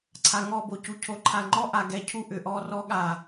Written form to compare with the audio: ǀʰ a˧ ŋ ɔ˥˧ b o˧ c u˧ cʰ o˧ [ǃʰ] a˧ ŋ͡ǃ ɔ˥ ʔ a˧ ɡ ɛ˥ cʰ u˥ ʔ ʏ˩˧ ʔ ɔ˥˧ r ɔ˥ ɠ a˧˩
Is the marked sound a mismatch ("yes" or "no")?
no